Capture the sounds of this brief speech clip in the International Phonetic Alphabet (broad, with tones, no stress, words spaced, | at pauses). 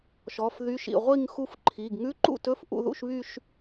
ʃɔ˩˧˩fðy˧˥˧ʃḭ˩˧˩ ʁʷi˥˧ŋ xu˥˧fǃʰi˩˧˩ɡ ŋʉ˧˥˧ǃṵ˥˧tɵ˧˥˧f ʔṵ˥˧ðṵ˥˧ʃβy˥˧ʃ